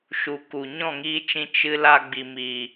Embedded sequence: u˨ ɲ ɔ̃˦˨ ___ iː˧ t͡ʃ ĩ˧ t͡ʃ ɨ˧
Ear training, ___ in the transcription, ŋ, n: ŋ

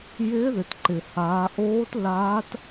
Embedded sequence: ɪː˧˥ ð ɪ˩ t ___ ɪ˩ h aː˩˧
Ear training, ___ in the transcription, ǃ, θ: ǃ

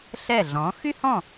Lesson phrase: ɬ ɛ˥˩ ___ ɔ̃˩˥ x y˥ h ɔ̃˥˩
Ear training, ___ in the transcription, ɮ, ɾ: ɮ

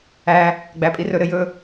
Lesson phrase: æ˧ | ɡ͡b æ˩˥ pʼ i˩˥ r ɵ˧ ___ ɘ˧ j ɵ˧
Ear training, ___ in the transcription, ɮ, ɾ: ɾ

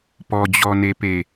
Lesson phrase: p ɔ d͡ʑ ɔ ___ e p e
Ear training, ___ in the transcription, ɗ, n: n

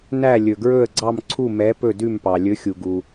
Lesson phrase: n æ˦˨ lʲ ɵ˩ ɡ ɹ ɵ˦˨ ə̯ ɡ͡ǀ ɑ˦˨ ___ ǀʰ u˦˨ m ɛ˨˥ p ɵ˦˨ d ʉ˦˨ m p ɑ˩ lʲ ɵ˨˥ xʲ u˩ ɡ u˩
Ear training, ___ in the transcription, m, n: m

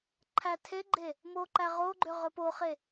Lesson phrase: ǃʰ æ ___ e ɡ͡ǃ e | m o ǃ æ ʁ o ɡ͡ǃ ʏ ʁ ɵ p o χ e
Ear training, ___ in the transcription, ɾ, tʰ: tʰ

